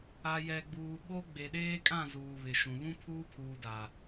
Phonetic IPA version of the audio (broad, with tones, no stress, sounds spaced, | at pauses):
a˨ j ɛ˨ ɡ͡b uː˨ ɓ o˦ ɡ͡b e˨ ɗ eː˦ kʼ ã˦˨ z uː˨ β ɪ˨ ʃ ũ˨ β ũ˦ pʰ uː˦ pʰ uː˨ d a˨